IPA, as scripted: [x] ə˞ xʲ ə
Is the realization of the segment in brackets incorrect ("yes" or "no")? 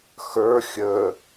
no